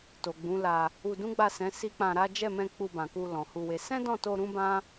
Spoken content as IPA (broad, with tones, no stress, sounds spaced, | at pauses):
t o˨ ɡ͡b ũ˨˦ l a˧ | u˧ d ũ˦ ɡ͡b a˦˨ s ɛ̃˨˦ s i˦ k͡p ã˧ ɾ a˦ d͡ʒ ɛ˦˨ m ɛ̃˧ k͡p u˧ b ã˨ k u˧ l ɔ̃˨ h u˧ w e˧ s ɛ̃˦ d ɔ̃˦˨ t o˧ ɾ ũ˦ b ã˦